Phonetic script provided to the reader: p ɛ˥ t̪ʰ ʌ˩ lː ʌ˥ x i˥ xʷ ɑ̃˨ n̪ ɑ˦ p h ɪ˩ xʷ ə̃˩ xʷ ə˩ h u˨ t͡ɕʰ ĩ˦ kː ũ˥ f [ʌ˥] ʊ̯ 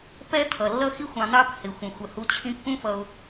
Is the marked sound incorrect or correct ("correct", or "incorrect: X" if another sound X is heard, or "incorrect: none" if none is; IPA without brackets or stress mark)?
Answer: incorrect: ʌ˨